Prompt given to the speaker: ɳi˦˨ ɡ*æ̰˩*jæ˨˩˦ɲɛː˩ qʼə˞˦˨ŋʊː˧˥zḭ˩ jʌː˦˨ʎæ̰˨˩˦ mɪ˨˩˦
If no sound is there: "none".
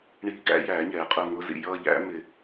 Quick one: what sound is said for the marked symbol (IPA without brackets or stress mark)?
æ̰˧˥